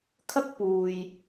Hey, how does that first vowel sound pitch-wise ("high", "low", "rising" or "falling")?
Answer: high